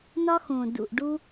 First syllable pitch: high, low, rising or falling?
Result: high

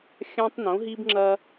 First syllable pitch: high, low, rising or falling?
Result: high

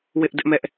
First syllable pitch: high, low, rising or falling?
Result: high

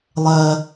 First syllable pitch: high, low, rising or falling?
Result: low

